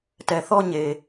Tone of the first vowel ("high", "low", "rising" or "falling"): low